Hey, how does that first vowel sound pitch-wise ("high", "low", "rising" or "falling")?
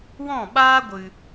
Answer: falling